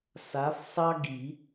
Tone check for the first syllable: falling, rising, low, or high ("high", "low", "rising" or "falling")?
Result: rising